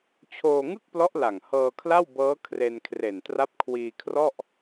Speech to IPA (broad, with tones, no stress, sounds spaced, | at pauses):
t͡ɕʰ oː˧ ŋ ɯ˥˩ k̚ p l ɔ˦˥ ʔ l a˨˩ ŋ h ɤː˧ kʰ l a˥˩ w b ɤː˦˥ kʰ r e˧ n kʰ r e˨˩ n t r a˦˥ p̚ kʰ w iː˧ kʰ r ɔ˥˩ ʔ